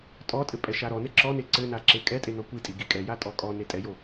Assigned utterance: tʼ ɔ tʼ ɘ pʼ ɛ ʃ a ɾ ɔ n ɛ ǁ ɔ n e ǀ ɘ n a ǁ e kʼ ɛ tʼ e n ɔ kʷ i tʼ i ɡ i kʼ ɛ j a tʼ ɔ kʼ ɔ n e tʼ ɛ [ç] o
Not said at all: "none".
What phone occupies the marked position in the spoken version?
j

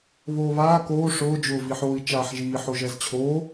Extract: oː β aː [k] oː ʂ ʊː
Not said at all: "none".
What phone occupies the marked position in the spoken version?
k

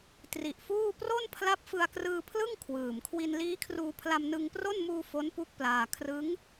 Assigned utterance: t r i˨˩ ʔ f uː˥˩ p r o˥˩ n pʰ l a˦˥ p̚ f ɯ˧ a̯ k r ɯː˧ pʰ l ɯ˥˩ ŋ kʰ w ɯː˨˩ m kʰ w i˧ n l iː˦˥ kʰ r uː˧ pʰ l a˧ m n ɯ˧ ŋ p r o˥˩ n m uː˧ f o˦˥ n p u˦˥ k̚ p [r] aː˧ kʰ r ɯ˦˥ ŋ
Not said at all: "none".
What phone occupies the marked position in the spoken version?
l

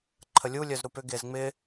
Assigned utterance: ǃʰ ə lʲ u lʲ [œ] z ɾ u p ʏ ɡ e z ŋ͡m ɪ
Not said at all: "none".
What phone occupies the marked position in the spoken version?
œ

